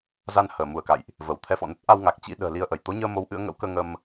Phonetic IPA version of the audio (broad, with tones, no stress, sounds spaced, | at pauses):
z a˧ n h əː˧˩ m u˧˩ ə̯ k a̰˧˨ j ʔ | v ə˧˩ w t̪ʰ ɛ˧ f ɔ̰˧˨ n ə˦˥ t̚ ʔ a˧ w ŋ a˨˩ k̚ t͡ɕ ḭ˧˥ ɗ ə̤ː˨˩ l i˧ ə̯ ʔ ə˧˩ j t̪ o˨˦ ɲ əː˧ m o˨˦ w ʔ ɨ̰˧˥ ə̯ ŋ ə̰˧˥ w k əː˧ ŋ ə˧ m